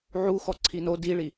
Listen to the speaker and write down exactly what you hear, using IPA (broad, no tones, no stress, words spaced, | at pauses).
ʕu xɔǀʰino diɭi